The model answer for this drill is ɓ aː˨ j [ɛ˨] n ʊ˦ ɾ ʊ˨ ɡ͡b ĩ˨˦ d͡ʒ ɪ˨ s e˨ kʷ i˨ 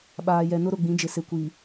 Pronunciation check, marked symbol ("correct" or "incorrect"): correct